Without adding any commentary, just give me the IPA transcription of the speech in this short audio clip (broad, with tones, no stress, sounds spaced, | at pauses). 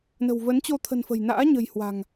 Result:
n ə̤˨˩ w v ə˨˦ n t͡ɕ o˧ t̪ʰ ə̤˨˩ n f ə̤˨˩ j n a̰ː˧˥ ɲ ə̤˨˩ j h w a̤˨˩ ŋ